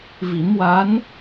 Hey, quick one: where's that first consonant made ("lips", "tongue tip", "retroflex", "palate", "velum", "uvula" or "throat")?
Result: lips